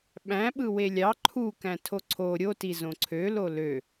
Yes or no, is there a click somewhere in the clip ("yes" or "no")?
yes